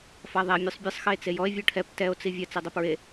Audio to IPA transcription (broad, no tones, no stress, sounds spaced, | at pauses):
f a ðˤ ɛ mʲ o sˤ bʲ ɘ sˤ x ɘ e̯ t͡s e j ɔ e̯ vʲ o ʈʰ ɛ p t ɛ o̯ t͡s i vʲ ɐ t͡s i dˤ ɘ p ɹ e